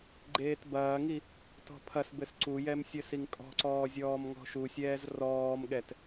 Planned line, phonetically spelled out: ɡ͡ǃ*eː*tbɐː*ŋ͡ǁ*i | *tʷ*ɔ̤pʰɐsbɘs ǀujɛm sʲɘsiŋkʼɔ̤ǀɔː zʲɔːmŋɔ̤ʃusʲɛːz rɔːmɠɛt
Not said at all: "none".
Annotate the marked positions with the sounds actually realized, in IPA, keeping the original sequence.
eː, ŋ, t

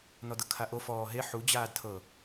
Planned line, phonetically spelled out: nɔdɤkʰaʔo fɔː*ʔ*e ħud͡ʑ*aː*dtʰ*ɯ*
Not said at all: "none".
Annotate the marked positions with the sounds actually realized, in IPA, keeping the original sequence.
ɦ, aː, ɤ

